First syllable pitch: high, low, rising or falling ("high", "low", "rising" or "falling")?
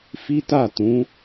high